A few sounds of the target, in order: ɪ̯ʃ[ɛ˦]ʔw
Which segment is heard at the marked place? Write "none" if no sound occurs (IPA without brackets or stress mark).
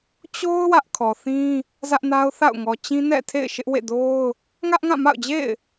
ɪ˦